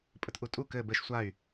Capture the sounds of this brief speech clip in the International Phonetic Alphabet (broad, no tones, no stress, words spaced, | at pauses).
pʼətʔutʼu kɘ bɘʃ sʷay̯